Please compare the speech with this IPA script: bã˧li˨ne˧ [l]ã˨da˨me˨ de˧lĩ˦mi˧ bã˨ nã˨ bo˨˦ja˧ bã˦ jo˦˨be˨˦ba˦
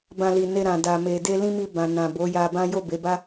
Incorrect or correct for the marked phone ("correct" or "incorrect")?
incorrect